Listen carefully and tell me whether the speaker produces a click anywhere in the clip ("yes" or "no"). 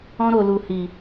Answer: no